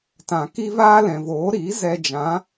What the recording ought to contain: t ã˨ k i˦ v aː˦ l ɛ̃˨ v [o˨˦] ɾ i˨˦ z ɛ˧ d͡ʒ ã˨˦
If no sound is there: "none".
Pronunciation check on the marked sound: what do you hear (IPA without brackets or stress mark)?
oː˨˦